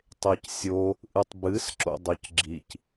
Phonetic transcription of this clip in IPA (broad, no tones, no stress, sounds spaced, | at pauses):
tˤ e c sʲ o | ʔ ɨ tˤ b ɨ s ǁ o̰ dˤ o c ɡ͡ǁ i c